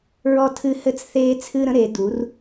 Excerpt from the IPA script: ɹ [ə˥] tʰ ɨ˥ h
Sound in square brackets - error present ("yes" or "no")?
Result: yes